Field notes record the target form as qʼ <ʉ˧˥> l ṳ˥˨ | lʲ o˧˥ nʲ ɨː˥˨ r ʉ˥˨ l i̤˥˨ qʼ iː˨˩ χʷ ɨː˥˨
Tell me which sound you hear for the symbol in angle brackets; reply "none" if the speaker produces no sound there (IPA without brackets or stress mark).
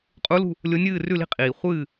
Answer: u˧˥